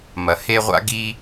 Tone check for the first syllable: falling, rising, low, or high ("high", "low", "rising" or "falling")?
low